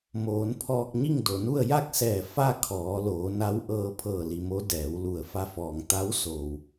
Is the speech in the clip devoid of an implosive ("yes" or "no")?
yes